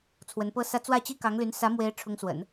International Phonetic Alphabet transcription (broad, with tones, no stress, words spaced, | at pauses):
t͡sʰwə˧˥npɤ˥sä˥ t͡swä˥˩t͡ɕi˥kɑ˧˥ŋly˧˥n sä˧˥mwe˧˥ɪ̯ ʈ͡ʂʰʊ˧˥ŋswə̰˨˩˦n